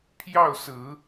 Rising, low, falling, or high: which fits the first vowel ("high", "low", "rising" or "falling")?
falling